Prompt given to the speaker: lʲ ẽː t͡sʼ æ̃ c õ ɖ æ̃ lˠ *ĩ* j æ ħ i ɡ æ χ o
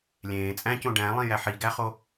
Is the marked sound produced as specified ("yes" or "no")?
yes